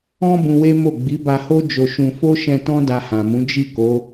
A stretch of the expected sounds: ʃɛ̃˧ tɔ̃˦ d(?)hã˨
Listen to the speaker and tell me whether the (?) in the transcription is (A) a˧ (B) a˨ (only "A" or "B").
A